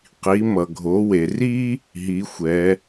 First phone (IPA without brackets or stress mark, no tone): q